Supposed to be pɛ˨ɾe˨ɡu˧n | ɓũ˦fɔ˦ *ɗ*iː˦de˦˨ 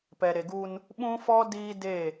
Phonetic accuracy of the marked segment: incorrect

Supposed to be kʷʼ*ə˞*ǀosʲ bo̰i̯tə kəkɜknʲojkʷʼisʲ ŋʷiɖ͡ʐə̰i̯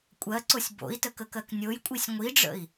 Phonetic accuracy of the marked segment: incorrect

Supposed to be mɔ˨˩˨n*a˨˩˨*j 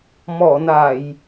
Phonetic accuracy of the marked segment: correct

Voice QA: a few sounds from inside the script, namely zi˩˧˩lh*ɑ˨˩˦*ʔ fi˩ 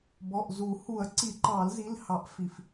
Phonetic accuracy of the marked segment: correct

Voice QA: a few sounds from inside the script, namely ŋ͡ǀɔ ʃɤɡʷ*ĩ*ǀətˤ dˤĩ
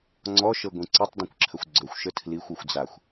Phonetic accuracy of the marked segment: correct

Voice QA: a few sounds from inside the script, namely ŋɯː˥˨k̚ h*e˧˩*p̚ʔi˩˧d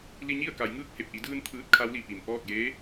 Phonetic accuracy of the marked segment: correct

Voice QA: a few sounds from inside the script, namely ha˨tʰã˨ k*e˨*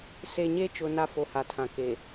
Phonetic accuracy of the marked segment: correct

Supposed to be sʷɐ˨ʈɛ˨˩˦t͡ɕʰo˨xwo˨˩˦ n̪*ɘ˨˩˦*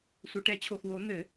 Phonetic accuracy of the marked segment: correct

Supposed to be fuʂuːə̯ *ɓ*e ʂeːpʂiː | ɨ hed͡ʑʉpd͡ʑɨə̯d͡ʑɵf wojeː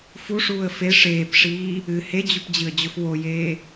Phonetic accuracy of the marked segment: incorrect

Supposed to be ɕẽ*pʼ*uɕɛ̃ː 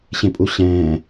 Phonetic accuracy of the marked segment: correct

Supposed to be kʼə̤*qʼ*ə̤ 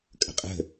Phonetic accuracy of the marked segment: correct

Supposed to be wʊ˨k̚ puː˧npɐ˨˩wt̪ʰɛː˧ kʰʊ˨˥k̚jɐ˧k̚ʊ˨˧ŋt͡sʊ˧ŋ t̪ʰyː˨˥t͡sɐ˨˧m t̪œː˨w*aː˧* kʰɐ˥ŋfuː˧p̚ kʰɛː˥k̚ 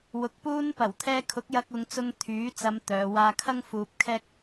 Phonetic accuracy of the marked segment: correct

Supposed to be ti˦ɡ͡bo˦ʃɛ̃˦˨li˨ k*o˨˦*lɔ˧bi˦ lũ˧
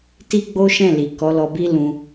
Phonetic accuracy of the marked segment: incorrect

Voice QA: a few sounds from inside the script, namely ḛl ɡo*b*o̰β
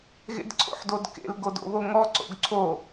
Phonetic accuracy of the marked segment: incorrect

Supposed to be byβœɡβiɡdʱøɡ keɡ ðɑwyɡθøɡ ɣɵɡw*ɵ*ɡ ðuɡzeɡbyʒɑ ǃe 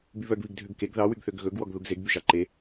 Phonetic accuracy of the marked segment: incorrect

